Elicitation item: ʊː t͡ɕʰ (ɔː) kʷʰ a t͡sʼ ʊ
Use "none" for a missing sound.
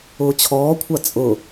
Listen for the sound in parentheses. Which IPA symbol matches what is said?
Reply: ɔː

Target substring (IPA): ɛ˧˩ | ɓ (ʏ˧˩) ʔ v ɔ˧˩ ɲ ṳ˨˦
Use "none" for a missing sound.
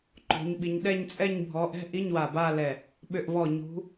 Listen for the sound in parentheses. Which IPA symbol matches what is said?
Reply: ʏ˧˩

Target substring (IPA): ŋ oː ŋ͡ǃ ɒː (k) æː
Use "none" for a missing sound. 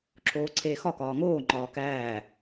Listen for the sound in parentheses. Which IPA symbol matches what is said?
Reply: k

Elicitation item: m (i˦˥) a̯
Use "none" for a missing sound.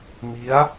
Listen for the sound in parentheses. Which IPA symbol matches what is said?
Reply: i˦˥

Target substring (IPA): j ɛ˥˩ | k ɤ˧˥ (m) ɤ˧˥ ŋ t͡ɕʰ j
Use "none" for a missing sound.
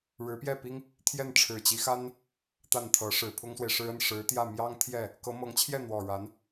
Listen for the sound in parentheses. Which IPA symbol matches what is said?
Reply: m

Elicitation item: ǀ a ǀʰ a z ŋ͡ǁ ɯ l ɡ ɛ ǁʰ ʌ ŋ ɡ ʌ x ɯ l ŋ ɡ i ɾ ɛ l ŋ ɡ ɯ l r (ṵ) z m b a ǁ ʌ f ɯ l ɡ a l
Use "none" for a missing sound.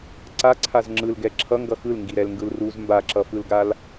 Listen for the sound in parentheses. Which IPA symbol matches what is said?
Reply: u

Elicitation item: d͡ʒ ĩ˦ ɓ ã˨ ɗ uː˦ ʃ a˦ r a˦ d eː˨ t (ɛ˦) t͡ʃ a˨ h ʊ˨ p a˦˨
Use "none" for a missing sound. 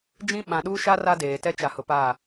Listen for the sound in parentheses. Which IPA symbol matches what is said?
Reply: ɛ˦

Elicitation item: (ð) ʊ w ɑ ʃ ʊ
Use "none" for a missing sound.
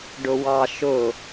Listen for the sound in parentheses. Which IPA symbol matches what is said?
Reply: ɖ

